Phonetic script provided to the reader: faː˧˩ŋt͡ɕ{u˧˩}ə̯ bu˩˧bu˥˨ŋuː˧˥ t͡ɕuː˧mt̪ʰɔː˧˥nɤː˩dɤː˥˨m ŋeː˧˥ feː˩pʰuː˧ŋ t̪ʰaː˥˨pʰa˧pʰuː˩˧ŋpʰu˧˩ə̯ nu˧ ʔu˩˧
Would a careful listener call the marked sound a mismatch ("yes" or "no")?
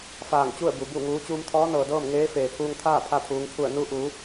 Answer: yes